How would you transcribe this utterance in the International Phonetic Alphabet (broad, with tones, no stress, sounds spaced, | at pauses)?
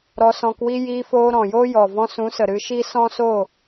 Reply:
ɾ ɔ˧ s ɔ̃˧ k w i˦ j iː˧ f oː˧ ɾ ɔ̃˨ j oː˦ j ɔ˨ v ɔ̃˧ s ũ˨˦ s ə˨ ɾ ɨ˧ ʃ i˦ s ɔ̃˦ s o˦˨